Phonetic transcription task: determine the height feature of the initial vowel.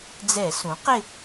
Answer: mid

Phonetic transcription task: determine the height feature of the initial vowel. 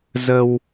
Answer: mid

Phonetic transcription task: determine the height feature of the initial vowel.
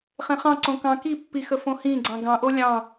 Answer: mid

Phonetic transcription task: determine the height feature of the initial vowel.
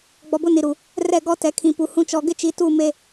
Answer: mid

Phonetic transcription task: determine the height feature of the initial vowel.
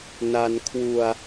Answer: low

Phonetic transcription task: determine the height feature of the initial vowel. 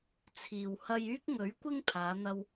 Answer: high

